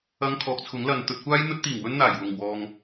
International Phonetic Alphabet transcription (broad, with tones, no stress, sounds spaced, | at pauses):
ɐ˧ ŋ kʰ ɔː˨ k̚ t͡sʰ ʊ˨˥ ŋ l ɐ˨ n t̪ ɵ˨ t̚ kʷ aː˥ j n̪ ɵ˥ t̚ t̪ iː˨˩ ŋ w ɵ˥ n n̪ aː˨˩ j w ʊ˨˩ ŋ w ɔː˨ ŋ